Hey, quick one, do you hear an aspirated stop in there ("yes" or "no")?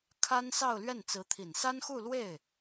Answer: yes